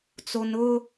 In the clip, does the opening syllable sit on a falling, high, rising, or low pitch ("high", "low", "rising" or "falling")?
low